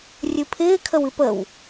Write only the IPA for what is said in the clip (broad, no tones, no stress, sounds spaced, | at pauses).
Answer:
rʲ ɨ pʰ ɪː kʰ ə w ɨ p ə w